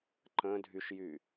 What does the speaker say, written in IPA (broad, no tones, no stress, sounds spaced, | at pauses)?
ǃ ə̃ dʱ y ʃ j y